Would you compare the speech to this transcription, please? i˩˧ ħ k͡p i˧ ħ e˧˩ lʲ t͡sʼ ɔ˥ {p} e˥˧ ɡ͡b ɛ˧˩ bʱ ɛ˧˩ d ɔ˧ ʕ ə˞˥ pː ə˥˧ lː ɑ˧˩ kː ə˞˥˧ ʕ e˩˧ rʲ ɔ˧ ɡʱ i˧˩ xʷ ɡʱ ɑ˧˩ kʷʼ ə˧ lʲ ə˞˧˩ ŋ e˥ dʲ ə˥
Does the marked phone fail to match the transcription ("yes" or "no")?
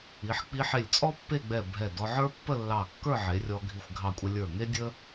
yes